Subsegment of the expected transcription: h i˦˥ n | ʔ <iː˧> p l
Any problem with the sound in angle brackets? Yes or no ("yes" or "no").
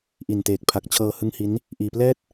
no